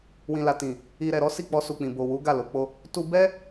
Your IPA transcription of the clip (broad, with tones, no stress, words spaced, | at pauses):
wĩ˨la˨tĩ˨ | i˨ɾɛ˨ɾɔ˨˦ si˦˨k͡pɔ˧su˨k͡pĩ˨ bo˨wu˨˦ ɡa˦˨lo˨˦k͡po˦ | tu˧ bɛ˦